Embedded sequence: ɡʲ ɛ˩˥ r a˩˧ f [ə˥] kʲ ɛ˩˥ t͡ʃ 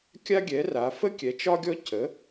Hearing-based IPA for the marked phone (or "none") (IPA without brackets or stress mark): ə˥